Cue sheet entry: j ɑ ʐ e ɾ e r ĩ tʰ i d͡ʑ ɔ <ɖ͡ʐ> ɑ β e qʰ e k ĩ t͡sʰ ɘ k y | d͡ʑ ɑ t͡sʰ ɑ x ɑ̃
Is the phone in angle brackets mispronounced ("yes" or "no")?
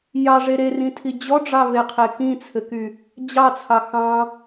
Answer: no